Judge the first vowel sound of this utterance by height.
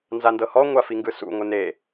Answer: low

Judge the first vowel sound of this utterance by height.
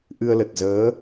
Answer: high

